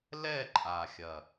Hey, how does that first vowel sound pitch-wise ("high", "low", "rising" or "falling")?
falling